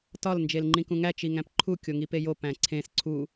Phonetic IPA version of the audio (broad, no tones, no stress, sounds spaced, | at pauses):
t ɒ l n d͡ʒ e l ŋ͡ǃ ĩ k ũ ŋ æ t͡ʃ i ŋ æ̃ p ǃʰ u kʲ o ŋ i p e j o p æ̃ ǀʰ ẽ s ǀʰ u